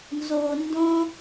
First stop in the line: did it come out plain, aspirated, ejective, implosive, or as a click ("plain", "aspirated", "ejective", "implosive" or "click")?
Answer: plain